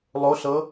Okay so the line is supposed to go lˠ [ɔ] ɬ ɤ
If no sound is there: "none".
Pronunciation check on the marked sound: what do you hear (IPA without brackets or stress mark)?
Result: o